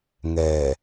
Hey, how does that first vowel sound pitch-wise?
low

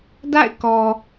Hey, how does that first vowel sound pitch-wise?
falling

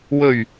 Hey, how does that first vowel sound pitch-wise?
low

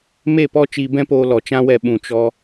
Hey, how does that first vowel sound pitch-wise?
falling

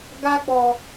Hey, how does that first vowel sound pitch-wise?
high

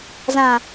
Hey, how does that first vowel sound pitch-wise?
low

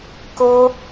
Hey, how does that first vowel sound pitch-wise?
high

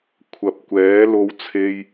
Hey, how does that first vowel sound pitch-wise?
low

